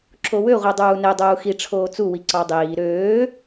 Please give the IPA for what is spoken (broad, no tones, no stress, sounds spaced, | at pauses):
ǁ o w ø ʁʷ i dˤ uː n e dˤ uː x i ʈ͡ʂʰ oː t͡s u w i ǀ ɑ dˤ iː ɾ øː